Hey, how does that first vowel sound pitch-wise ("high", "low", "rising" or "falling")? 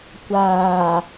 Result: low